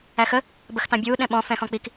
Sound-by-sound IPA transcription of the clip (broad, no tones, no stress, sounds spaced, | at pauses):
æ x ə | b ə x t ɑ̃ bʲ uː ɗ ɛ̃ ɓ ɔ̃ f ɛ̃ː x ɔ̃ k͡p i k